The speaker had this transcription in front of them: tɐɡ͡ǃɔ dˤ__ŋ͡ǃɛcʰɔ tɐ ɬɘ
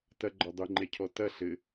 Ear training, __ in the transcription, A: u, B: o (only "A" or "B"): A